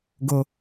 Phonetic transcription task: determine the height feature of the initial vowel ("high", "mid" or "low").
mid